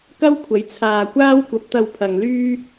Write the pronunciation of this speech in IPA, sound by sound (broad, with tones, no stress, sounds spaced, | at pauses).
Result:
k ɐ˥ w kʷʰ ɐ˨˥ j t͡sʰ aː˧ kʷ aː˥ w kʷ ɐ˨˥ p̚ t̪ ɐ˧ w pʰ ɐ˨ ŋ l yː˥